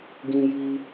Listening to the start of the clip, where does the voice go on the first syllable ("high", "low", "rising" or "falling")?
high